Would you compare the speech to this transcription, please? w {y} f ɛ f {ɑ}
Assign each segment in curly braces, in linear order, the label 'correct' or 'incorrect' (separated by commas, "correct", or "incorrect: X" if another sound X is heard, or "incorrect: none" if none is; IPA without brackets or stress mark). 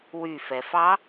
correct, correct